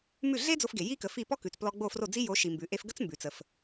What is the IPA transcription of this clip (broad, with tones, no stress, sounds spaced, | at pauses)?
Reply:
m ʉ˥˩ ɮ e˥ d͡z o˧ f ɡ e˩ j i˥ k ə˩˥ f i˥˩ p ɔ˥ k ʉ˩ t͡s p l ɔ˧ ɡ͡b o˥˩ f r o˥˩ d͡z i˥ j o˩˥ ʃ i˩ m b ʉ˩ ʔ e˧ f ɡ ə˥ t͡s m b ʉ˩ t͡s ə˩ f